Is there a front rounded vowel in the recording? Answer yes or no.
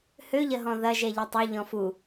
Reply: yes